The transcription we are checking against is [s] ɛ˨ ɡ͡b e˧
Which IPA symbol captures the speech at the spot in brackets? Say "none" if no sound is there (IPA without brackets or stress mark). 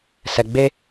s